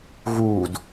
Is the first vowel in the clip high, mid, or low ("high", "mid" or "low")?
high